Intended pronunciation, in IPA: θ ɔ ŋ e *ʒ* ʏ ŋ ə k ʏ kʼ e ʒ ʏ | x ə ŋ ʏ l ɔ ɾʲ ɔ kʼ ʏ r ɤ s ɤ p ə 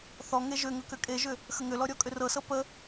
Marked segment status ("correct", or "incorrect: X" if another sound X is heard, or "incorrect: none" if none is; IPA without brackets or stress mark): correct